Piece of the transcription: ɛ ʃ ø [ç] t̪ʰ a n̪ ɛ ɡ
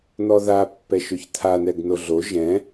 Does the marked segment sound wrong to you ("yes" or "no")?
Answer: no